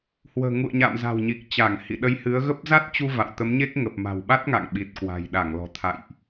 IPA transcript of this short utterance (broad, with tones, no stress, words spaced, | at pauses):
hwə̤ː˨˩ŋṵ˧˨ə̯ɲa̰ː˧˨m za̤˨˩wɲi˨˩k̚ t͡ɕa˧˩ŋ hḭ˧˨ɗə˧jhɨ˨˦ə̯ɣə˦˥p̚ za˦˥t̚t͡ɕu˧ va̰˧˨wt̪ə˨˦mɲe˦˥k̚ ŋə˨˩p̚ma̤˨˩wɓa˦˥t̚ ŋa̰˧˨ŋɓi˨˩t̚kwa̤˨˩j ɗa˧˩ŋlɔ̤˨˩t̪ʰa̰˧˨jʔ